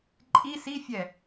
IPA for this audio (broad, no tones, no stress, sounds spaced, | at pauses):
ǃʼ i s i fʲ ɛ